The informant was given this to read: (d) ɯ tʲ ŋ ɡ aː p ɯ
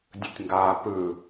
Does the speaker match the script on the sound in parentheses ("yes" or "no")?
no